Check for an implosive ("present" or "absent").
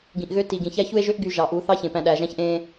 present